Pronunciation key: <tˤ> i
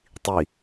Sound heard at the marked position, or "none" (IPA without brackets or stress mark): tˤ